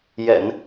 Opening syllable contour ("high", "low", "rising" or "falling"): low